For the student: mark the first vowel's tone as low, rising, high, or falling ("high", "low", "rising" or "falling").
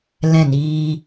falling